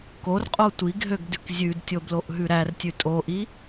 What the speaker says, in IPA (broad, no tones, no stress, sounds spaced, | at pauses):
k o r qʼ o tʷ i ɡ ɦ ø ɡ d ʉ k zʲ ʉ d tʲ o b l o ʔ ɦ ʉ ɾ æ r tʲ ʉ tʼ o ʔ i